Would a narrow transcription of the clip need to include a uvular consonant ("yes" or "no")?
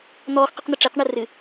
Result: yes